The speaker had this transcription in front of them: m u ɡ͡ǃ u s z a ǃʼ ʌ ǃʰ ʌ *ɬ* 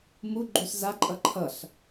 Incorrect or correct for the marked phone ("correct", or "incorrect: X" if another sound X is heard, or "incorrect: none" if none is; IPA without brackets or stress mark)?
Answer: correct